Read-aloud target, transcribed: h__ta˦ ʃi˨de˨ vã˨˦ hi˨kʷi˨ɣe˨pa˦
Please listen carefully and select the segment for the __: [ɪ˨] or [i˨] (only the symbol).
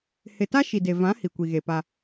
ɪ˨